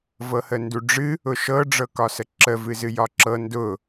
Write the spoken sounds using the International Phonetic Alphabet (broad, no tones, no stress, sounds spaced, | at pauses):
v ɤ h ə n d u ɖ͡ʐ ɨ | ʊ ʃ ɤ ɖ͡ʐ ɤ k ɒ s ə ǁ ə v ɨ z ɨ j ɒ ǁ ɤ n d ʊ